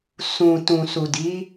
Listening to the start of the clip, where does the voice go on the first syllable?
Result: low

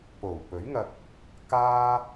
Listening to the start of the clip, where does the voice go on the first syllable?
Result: low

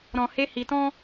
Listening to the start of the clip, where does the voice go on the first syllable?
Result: low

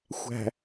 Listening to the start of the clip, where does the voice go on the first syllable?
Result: low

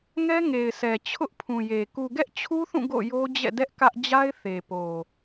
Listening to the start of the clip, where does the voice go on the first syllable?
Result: high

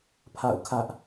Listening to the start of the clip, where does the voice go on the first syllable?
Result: falling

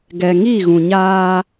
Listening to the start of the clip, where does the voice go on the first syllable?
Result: low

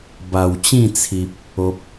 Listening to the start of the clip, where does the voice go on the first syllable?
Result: low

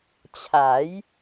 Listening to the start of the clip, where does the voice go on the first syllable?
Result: rising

